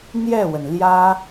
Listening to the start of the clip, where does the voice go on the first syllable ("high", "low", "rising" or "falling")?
falling